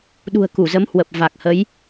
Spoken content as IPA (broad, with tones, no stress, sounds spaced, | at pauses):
ɗ ṳ˨˩ ə̯ k u˧˩ z ə˨˦ m h w ə˨˩ p̚ v a˨˩ k̚ h ə˨˦ j